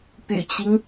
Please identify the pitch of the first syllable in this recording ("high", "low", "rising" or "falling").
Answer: low